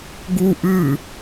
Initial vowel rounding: rounded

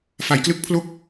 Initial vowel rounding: unrounded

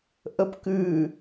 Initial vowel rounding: unrounded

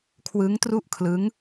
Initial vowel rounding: unrounded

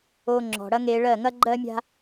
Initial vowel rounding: rounded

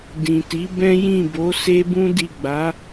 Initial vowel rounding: unrounded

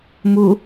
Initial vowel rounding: rounded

